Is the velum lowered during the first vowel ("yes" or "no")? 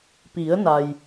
no